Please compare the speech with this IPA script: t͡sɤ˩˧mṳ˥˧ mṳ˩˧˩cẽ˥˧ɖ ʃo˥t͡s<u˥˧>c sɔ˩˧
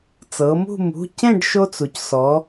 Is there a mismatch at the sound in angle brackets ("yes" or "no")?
yes